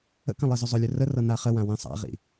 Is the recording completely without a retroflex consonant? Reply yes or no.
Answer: yes